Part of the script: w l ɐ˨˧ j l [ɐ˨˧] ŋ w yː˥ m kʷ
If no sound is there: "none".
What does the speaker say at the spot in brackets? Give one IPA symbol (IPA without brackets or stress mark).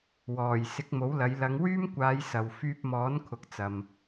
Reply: ɐ˨˧